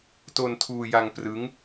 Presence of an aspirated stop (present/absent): present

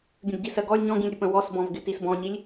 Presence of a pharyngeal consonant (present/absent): absent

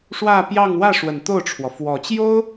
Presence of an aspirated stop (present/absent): present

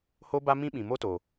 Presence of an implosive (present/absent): present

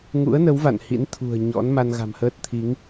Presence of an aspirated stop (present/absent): present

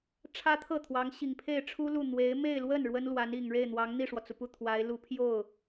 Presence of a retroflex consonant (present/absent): present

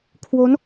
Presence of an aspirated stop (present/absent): present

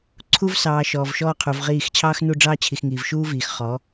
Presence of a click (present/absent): present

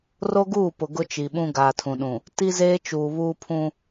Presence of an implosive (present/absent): present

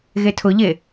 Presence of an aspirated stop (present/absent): present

